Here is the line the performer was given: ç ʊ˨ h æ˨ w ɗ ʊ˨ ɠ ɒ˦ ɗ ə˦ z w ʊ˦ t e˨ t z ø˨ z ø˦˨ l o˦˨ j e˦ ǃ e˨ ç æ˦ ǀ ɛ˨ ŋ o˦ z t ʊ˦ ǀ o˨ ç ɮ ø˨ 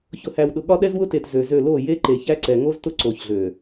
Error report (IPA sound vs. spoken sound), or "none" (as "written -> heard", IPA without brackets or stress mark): ə˦ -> ɛ˦